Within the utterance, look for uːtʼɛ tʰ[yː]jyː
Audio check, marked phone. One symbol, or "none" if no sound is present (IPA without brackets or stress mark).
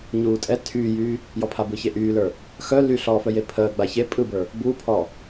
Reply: yː